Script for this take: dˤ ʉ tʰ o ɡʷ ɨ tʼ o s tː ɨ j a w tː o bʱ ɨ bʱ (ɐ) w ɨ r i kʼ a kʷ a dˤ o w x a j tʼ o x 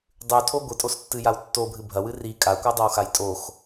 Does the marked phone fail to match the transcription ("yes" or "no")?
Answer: no